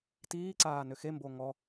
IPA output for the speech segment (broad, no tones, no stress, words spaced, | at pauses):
tiːǀaː nʏxembo ŋɔ